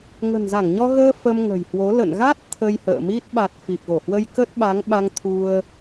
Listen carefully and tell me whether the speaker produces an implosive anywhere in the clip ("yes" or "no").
yes